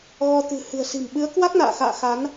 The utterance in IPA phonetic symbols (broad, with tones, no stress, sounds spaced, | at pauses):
ɣ ɔ˧ t̪ ɨ̤˨˩ h ɨ̤˨˩ ə̯ s i̤˨˩ m ɓ ɨ˨˦ ə̯ k w a˦˥ k̚ n a̰ː˧˨ x a̰ː˧˨ x a˨˦ n